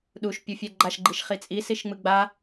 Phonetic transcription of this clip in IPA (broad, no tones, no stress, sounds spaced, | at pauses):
ɗ u ʃ pʲ u fʲ ɛ ɡ͡ǃ a ʃ ɡ͡ǃ i ʃ χ i t͡sʼ i s i ʃ ŋ͡m ɯ ɡ͡b a